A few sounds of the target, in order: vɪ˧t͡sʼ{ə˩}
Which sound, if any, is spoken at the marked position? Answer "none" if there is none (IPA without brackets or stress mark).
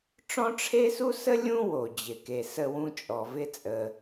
ə˩